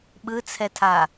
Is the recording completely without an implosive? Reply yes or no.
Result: no